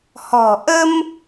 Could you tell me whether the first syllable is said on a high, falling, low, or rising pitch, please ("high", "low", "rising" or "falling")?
low